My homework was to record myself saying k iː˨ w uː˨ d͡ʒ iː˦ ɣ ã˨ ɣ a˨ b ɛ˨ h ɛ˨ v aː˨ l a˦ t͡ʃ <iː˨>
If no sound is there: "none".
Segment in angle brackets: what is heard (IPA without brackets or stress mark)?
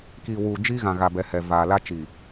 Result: iː˨